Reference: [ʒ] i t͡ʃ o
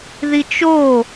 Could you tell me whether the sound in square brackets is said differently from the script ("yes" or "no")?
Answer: yes